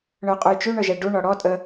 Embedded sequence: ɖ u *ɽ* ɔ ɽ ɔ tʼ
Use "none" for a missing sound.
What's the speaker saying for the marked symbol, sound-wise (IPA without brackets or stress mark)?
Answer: ɳ